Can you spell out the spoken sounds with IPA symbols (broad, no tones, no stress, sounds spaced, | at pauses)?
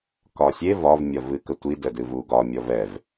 k ɒ sʲ e v ɒ v mʲ ɒ v ɨ k ə tʷ i d ə d ɨ v u ɡ ɒ mʲ ɔ v ɛ v